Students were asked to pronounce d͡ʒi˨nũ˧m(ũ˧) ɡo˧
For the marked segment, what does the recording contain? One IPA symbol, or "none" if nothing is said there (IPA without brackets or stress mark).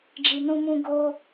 ũ˧